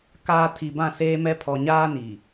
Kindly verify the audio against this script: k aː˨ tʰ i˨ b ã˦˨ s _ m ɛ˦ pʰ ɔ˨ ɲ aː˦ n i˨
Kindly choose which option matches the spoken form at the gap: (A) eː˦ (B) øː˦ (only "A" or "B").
A